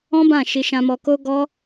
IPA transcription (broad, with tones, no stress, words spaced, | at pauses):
ɔ̃˦bã˦˨ ʃi˧ ʃã˧mɔ˧ko˦ɡɔ˦